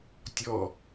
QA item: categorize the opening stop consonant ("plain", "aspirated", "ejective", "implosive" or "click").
plain